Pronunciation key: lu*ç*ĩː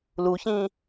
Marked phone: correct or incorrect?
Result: correct